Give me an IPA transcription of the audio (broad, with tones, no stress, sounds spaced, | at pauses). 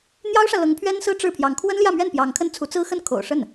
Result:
n̪ j ɑ˥ ʊ̯ ʂ ä˨ l ɤ˧˥ ŋ pʰ ɥ ɛ˥ n s ɹ̩˥ ʈ͡ʂ ɻ̩˥˩ pʰ j ɑ˧˥ ŋ kʰ w ə˥ n l j ä˥˧ m ɥ ɛ˥˩ n p j ɑ˧˥ ŋ kʰ ə˥ n t͡sʰ u˧˥ t͡s ɹ̩˥ x ə˥˩ n kʰ o̰˨˩ ʊ̯ ʂ ə˥˩ n